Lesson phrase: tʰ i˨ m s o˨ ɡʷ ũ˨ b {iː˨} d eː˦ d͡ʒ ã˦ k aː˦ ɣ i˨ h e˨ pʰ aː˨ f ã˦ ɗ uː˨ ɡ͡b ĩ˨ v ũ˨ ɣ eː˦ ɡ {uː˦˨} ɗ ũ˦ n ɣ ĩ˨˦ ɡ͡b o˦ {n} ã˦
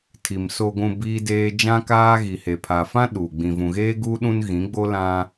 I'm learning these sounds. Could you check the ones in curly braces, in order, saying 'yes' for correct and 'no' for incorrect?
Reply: no, no, no

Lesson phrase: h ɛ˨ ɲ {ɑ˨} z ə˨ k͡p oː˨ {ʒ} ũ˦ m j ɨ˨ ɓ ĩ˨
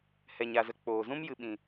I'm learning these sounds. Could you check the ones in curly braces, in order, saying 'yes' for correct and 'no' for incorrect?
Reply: no, no

